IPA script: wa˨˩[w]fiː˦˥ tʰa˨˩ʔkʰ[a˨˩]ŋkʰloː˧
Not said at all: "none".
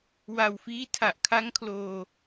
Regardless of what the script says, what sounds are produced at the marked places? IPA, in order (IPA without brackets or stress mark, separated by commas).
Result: w, a˦˥